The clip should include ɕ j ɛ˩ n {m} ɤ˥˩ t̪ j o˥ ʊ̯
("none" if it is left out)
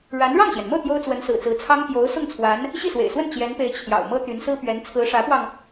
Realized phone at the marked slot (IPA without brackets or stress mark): m